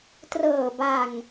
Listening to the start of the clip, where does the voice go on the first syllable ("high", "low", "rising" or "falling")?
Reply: low